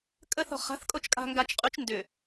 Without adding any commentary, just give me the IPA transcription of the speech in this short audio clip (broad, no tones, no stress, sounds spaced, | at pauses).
kʼ ə θ ɔ̤ χ a̤ θ kʼ o t͡ʃ kʼ a̤ ŋ ɡ a t͡ʃ qʼ y t͡ʃ n d ʏ